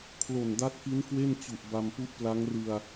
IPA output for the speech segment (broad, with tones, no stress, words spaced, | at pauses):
kʰlo˨˩nda˦˥t̚ki˦˥n kwe˥˩nt͡ɕu˨˩ʔ ba˧mpu˦˥ʔpla˦˥ŋ rɯ˧a̯